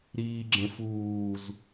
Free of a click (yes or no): no